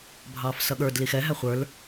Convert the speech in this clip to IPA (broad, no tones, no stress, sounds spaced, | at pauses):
bʱ ɑː f s ʌ ɠ ə˞ d l i x ɛ ɦ æ χʷ ə˞ l